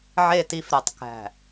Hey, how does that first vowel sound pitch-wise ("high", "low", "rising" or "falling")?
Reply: falling